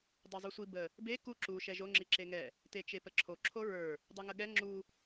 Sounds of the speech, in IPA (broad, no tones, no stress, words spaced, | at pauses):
dˤɛzˤusʷi bə | be ku ǁu ʃɛʒo ŋ͡ǁiǁeŋɛ | tet͡ʃepəǁʰo ǁʰoɹə˞ | dˤuŋəɠɛ ŋ͡ǁu